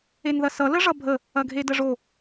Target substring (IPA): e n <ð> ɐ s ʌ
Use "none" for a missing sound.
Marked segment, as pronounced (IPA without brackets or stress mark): ð